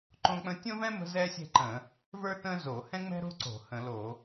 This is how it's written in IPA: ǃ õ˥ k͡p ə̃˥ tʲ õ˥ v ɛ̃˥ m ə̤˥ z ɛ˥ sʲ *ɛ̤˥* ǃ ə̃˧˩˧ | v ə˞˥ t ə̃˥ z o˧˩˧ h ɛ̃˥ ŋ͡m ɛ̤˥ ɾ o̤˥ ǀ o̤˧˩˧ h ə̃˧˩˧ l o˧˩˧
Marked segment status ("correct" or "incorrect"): correct